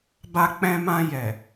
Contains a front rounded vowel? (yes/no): no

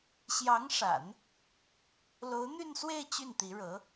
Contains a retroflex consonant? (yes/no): yes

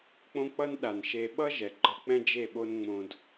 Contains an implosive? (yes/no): yes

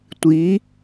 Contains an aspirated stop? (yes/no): no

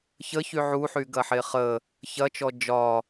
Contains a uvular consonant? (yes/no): yes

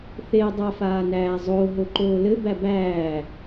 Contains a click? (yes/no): yes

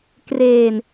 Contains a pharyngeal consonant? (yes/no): no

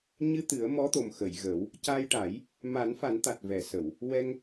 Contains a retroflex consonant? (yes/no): yes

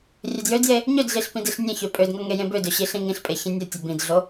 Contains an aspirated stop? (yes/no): no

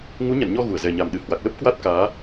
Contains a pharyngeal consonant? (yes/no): no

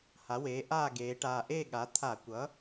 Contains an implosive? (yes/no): yes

